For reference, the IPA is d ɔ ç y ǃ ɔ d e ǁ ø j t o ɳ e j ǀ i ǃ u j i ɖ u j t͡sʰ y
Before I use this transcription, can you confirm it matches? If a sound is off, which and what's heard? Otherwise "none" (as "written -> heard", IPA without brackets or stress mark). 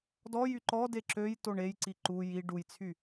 ç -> j